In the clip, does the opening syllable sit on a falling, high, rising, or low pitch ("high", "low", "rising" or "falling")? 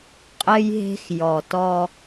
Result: high